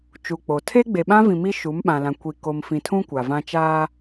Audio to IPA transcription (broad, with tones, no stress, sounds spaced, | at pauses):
t͡ʃ u˨ k͡p o˨ tʰ e˦ ɡ͡b e˨ ɓ ã˦ v ĩ˨ m i˦ ʃ u˨˦ m ɓ ã˨ l ã˨ kʷ i˨ k o˨ m f ĩ˨ tʰ ũ˦ kʷ a˨ v ã˦ t͡ʃ aː˦